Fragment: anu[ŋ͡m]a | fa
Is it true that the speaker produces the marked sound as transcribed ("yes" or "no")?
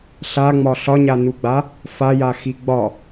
no